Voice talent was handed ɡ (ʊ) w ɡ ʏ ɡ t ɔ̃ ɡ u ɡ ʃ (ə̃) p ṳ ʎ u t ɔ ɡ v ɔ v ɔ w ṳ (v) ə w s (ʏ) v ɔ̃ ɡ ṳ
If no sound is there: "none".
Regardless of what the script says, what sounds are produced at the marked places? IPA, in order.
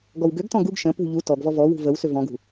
ɔ, ə̃, v, ʏ

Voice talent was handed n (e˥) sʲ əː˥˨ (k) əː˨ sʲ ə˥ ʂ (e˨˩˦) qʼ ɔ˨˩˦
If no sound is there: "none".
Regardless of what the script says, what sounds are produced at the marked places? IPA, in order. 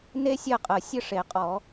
e˥, qʼ, e˨˩˦

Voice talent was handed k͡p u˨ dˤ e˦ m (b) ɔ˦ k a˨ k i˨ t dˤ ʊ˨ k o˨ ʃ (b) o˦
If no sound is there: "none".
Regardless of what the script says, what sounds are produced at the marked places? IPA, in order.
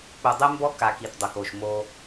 b, m

